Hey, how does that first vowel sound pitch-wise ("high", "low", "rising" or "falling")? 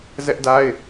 high